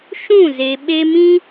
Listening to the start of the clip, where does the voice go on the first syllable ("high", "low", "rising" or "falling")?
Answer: falling